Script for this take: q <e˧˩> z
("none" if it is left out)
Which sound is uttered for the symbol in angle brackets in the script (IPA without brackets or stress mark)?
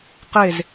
e˧˩